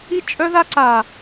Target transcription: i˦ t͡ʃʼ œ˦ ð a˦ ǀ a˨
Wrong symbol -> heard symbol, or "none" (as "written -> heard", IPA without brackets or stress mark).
none